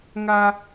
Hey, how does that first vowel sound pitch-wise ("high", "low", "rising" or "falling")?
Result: high